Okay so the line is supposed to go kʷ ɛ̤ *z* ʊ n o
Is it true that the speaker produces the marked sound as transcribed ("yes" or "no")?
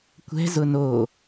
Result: yes